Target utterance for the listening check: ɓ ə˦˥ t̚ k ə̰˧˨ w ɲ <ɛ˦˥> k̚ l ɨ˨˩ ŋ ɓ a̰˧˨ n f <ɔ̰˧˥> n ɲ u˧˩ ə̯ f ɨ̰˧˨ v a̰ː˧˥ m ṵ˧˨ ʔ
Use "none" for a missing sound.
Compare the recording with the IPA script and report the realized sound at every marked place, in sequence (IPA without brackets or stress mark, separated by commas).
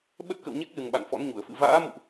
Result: ɛ˦˥, ɔ̰˧˥